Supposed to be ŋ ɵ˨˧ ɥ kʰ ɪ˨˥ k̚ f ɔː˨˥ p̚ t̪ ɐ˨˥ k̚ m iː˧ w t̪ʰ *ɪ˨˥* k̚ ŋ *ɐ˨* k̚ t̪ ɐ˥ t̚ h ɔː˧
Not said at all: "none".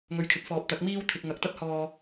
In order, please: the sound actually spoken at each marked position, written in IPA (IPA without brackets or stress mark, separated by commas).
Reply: ɪ˨, ɐ˨